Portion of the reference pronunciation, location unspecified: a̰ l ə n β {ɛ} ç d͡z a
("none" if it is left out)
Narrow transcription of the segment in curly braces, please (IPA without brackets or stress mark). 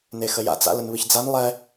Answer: ɨ